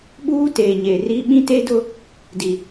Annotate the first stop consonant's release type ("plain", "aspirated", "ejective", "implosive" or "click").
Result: implosive